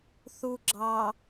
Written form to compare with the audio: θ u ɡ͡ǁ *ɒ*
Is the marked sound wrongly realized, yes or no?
yes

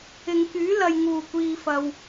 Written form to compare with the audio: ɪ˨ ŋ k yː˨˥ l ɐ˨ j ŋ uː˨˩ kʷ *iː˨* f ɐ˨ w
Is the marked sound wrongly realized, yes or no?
no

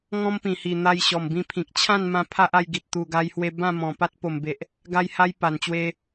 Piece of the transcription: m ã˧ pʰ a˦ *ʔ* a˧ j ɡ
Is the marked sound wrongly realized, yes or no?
no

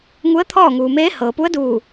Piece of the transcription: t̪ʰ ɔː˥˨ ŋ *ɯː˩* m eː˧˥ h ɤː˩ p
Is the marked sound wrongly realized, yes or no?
yes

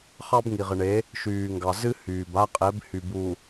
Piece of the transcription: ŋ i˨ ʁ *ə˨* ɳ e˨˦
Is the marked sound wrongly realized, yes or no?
no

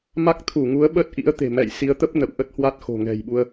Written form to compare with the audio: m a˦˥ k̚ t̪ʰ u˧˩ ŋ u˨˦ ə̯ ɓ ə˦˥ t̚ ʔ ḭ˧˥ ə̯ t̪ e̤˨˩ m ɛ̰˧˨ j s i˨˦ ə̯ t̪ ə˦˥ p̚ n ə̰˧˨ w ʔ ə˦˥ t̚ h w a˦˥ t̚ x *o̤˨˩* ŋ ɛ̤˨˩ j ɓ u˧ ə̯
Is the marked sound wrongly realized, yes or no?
no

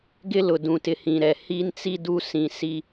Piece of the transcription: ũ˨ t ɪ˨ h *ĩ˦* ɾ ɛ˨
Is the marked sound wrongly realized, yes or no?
yes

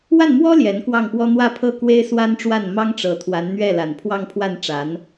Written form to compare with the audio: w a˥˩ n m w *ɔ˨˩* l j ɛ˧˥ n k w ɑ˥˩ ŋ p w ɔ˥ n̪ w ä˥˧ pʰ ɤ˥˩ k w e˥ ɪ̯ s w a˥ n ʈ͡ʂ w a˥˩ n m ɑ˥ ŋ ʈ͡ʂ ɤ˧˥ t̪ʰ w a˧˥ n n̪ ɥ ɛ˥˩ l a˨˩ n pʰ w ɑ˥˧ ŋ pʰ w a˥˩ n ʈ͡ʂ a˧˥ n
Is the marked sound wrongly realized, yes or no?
yes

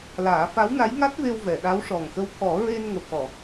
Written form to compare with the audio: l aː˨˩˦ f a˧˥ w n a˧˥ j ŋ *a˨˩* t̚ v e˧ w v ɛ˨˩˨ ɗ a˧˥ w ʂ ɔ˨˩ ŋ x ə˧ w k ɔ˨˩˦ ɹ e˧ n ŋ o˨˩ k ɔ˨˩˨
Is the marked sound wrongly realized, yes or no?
yes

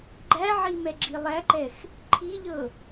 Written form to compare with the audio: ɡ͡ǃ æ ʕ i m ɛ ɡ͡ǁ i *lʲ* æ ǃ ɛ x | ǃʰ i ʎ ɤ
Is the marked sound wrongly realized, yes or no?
yes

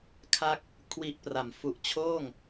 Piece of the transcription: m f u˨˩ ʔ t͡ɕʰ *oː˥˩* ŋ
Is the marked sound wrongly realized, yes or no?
no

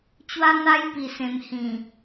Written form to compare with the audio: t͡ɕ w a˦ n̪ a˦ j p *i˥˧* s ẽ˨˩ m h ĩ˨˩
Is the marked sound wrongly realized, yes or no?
yes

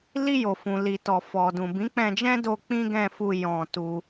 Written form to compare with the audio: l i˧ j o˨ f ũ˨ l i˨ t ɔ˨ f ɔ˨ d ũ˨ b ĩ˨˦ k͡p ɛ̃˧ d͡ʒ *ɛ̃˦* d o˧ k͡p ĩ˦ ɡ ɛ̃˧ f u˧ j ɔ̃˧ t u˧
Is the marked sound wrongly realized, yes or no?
no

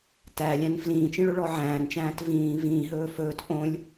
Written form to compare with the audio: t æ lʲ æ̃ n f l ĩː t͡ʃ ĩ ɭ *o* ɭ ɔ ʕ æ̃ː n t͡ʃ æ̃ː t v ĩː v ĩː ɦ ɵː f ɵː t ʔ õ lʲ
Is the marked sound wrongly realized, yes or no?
yes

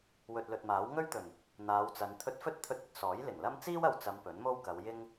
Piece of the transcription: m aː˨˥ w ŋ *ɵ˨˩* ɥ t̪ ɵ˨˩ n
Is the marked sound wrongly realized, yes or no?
yes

